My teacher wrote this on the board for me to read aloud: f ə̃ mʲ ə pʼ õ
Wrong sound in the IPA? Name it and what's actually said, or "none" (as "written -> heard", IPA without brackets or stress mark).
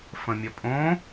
none